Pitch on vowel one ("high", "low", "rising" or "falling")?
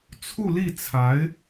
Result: falling